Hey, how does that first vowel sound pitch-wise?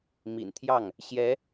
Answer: low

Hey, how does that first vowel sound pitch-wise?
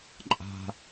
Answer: high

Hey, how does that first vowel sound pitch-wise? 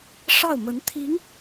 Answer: falling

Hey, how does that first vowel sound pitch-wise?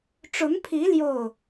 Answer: rising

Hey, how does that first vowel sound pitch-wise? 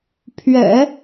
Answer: low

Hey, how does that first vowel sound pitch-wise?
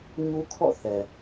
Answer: high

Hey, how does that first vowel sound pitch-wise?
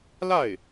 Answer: falling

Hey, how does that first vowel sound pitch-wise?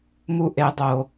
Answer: high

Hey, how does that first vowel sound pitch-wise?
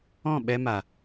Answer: falling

